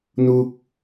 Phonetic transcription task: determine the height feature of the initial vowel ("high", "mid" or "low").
high